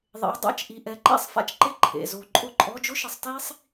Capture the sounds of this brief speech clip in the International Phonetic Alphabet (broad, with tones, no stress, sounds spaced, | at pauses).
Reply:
ðˤ ḛ˩˥ w dˤ a̰˧˥˧ t͡ʃ ʔ i˩˧˩ ʔ ɛ˩˥ ǃ ḛ˥˩ sˤ f a̰˥ t͡ʃ ǃ e˥˩ ǃʰ ḛ˩˧˩ z o˧˩˧ ǃʼ ʊ˥˩ ǃʼ ɔ˧˥˧ d͡ʒ ʊ˥ ʃ ɪ˩˥ sˤ t i˥ sˤ